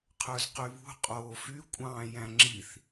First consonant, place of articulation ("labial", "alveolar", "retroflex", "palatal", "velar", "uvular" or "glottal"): uvular